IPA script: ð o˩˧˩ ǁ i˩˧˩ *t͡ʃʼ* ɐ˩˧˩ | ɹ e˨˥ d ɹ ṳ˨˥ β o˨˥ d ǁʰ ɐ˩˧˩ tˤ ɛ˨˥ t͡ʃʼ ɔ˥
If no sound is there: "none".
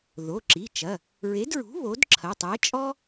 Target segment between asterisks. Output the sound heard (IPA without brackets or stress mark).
t͡ʃ